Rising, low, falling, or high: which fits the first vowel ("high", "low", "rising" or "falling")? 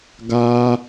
high